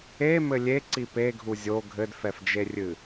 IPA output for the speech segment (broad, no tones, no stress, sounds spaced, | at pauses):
e m ɘ lʲ e ǀ i p e ɡʱ u zʲ o ɡʱ ɘ d f ɛ f d͡ʒ e rʲ ɨ